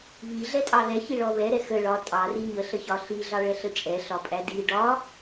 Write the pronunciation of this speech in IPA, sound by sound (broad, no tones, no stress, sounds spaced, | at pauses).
β i ɮ ɛ tʼ ɑ ð ɛ ç i ɭ ɔ β ɛ ɾ ɛ x ə ɭ ɒ tʼ ɑ r i ɲ ə ɬ ə ç ɒ ɬ i ɮ ɑ ɭ ɛ ɬ ə t͡ʃʼ ɛ ɬ ɒ pʼ æ d i ɖ ɒ